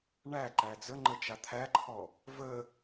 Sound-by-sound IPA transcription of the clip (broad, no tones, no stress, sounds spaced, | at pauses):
ɳ æ ǃ æ d͡z ə ŋ͡ǃ ə t͡ʃ a t̪ʰ æ ǃʰ ɔ | v ə